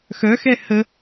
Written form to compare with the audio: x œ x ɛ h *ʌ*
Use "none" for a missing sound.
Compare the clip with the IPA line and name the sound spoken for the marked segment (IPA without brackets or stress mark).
ə